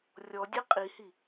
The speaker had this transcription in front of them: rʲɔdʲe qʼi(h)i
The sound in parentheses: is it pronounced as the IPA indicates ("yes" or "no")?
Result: yes